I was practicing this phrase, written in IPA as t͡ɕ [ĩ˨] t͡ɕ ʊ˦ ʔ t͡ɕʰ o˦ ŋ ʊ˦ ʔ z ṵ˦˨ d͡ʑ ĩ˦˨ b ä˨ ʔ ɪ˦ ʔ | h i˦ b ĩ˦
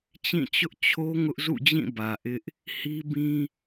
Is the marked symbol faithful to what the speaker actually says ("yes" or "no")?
no